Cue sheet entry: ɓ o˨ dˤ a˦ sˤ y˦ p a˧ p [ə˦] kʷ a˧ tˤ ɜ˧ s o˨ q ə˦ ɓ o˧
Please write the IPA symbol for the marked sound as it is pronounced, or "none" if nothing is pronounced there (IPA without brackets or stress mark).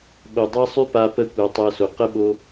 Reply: ə˦